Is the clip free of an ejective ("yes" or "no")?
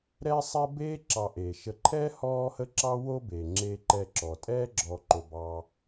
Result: no